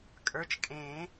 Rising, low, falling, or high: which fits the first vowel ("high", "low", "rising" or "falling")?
rising